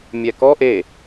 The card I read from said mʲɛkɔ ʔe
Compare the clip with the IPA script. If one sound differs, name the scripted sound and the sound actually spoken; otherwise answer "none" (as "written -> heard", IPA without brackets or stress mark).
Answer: none